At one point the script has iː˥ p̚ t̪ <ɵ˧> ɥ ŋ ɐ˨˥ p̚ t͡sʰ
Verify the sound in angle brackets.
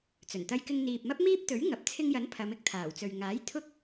incorrect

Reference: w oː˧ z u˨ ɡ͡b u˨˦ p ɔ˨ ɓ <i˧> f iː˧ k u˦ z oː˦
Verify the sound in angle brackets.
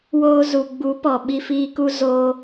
correct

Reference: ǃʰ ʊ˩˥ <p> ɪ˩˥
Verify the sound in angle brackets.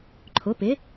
correct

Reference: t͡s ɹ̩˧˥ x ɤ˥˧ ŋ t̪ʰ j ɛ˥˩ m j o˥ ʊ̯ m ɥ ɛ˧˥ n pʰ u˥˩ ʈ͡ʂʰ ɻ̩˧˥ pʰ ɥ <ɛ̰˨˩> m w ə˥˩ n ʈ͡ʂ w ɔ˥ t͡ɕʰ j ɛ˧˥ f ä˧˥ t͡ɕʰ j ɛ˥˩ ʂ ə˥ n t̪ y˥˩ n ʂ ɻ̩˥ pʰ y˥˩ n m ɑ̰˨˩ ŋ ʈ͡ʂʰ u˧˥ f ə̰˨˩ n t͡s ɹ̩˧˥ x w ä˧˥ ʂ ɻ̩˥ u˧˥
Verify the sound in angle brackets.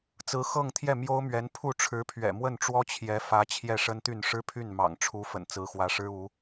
correct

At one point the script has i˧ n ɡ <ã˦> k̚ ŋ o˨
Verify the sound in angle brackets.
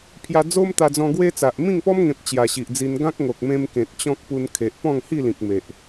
correct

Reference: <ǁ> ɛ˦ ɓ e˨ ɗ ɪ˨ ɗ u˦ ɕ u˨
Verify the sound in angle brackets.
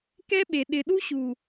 incorrect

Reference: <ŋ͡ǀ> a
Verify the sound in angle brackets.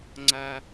correct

